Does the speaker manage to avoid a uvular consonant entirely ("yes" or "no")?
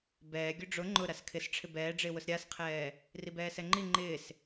no